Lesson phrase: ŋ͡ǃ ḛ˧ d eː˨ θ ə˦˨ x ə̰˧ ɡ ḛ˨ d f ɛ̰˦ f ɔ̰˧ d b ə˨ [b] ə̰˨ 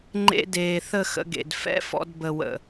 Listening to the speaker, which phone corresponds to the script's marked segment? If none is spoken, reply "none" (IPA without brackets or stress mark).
w